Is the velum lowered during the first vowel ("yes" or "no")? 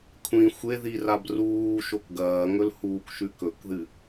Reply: yes